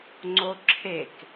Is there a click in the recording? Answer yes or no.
yes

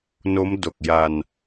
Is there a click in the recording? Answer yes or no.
no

